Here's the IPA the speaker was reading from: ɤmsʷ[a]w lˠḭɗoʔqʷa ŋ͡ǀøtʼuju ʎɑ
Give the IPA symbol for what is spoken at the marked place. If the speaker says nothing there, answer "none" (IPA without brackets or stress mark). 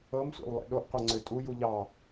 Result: a̰